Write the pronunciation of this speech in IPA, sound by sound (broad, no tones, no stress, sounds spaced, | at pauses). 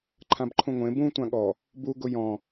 ǃʰ ã b ǃʰ ũ ŋʷ ẽ b ũ tʷ ã ɠ ɔ | b u ɡ ʊ j ɔ̃